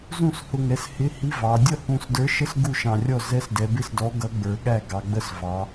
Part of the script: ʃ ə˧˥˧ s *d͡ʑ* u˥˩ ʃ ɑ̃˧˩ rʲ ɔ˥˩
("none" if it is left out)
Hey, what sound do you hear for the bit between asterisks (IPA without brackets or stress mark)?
ɡ